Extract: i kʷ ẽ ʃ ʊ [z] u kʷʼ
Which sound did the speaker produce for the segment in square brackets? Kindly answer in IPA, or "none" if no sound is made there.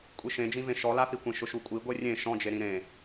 ʃ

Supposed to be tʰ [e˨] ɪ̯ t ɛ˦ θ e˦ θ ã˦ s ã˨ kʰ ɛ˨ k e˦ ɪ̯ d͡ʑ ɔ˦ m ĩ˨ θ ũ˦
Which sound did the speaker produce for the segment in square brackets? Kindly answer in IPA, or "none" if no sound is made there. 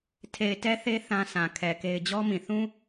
e˨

